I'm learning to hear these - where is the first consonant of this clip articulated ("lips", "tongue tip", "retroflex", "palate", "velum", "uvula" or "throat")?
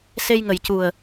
tongue tip